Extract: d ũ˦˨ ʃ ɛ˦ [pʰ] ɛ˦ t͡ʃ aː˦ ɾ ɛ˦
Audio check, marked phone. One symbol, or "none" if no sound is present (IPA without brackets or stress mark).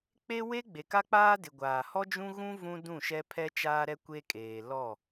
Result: pʰ